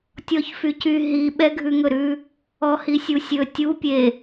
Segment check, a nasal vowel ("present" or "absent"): absent